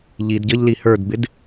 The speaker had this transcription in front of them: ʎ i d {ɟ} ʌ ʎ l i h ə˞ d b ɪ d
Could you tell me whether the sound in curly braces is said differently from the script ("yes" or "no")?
no